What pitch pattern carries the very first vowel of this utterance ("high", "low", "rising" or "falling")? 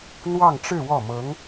falling